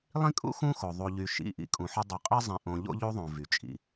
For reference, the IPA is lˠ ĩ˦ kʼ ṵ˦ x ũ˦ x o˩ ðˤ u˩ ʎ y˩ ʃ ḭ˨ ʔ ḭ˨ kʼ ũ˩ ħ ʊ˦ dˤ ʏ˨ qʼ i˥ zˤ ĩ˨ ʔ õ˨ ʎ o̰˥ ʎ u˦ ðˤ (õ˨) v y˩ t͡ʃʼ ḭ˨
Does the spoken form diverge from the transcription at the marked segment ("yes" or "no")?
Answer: yes